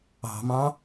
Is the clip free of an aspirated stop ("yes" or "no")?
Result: yes